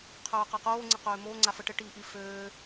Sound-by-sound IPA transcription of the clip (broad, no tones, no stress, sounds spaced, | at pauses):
qʰ øː q a q oː ŋ͡ǀ ə q øː m oː ŋ͡ǀ a f ə ʈ ɘ ʈ iː ʔ i f øː